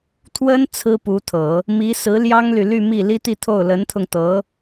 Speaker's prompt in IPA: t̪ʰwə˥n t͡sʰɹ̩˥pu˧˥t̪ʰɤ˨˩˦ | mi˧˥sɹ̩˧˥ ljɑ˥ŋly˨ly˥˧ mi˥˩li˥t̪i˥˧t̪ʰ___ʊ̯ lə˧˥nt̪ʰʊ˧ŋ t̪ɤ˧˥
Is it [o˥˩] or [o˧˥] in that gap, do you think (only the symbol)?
o˥˩